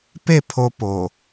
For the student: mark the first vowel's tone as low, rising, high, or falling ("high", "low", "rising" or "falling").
falling